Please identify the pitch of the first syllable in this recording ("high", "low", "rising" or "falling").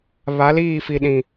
rising